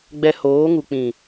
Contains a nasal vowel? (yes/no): yes